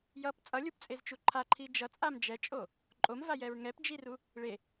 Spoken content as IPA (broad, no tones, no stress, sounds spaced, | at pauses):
j ʌ p t͡sʼ ʌ lʲ u p t͡sʼ e z t͡ʃ u ǃʰ a ǃʰ i d͡ʒ ʌ t͡sʼ a m d͡ʒ ɛ t͡ʃʼ o | ǃʼ o m v a j ɛ ɹ ŋ ɛ p d͡ʒ i r u | ɭ e